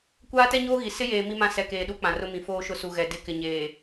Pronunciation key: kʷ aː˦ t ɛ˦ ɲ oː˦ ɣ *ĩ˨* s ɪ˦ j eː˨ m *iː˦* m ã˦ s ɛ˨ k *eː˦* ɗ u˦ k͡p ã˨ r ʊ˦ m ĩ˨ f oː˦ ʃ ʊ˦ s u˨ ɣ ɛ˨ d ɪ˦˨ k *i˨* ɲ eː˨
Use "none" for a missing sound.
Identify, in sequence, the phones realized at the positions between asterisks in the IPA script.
i˨, i˦, eː˨, ɪ˨

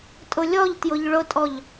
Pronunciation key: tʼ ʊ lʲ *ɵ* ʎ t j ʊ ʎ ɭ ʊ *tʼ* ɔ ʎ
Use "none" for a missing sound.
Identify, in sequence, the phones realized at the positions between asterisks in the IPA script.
ɔ, tʼ

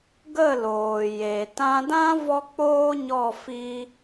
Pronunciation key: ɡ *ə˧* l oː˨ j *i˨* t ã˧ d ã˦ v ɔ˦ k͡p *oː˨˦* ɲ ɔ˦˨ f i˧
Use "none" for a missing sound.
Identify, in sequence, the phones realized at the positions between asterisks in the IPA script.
ə˦˨, e˨, oː˦

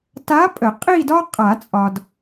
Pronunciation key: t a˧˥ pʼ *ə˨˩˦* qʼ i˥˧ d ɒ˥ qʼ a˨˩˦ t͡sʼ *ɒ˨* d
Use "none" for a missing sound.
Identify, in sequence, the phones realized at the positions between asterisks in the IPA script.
ə˨˩˦, ɒ˨

